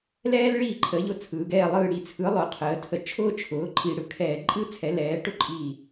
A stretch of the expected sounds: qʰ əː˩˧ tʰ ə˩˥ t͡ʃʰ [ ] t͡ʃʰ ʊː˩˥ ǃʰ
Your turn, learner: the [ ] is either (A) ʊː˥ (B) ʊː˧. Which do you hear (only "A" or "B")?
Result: A